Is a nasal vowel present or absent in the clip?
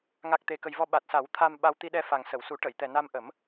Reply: absent